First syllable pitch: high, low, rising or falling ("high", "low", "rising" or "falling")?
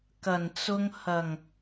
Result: low